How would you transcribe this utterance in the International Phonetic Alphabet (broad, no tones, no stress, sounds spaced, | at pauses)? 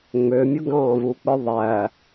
ŋ͡m ø mʲ o ɡ ɑ̃ v u k͡p ɯ ðˤ æ